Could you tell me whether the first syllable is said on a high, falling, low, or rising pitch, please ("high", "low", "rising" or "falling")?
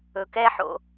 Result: low